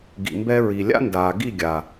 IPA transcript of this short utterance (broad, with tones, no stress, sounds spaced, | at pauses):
ɡ ḭ˨ m b ɛ˧ ɹ i˨ lʲ a̰˦ n d aː˨ ɡ i˦˨ ɡʲ a˨